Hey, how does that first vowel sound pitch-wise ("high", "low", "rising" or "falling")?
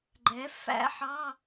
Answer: rising